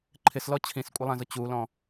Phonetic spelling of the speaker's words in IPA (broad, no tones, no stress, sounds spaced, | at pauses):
ǃʰ ɪ s l ɔ t͡ɕʰ ĩ s kʷʼ ɪ lˠ æ̃ z ʊ t͡ɕ u l ɔ̃